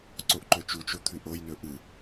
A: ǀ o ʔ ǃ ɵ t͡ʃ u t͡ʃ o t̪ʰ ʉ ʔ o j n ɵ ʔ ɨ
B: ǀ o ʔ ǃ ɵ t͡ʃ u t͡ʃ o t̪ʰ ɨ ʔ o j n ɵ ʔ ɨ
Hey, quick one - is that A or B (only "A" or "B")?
A